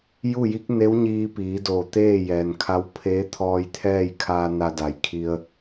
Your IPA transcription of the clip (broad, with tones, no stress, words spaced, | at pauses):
ju˥˨ji˧˥k̚ne˧˥w ɲiː˧piː˩˧ doː˧˩t̪eː˥˨jɛː˩nkʰa˧˥w pʰeː˧˥ t̪ʰɔː˧jt̪ʰɛː˥˨jkʰaː˧ na˧da˩˧jkʰi˧ə̯